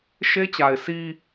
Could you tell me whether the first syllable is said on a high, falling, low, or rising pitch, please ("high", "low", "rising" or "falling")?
high